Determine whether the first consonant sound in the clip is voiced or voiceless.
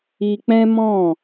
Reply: voiceless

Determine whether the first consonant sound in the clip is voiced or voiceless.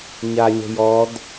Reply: voiced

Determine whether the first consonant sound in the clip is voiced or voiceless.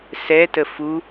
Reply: voiceless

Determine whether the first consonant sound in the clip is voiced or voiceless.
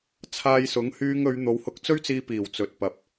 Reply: voiceless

